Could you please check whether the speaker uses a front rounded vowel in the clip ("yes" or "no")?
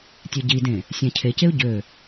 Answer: yes